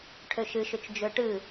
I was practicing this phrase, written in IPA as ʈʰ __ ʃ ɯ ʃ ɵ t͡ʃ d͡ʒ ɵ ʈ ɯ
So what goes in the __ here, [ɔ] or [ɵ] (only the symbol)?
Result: ɵ